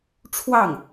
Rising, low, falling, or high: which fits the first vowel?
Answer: falling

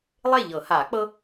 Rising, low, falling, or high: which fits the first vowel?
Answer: falling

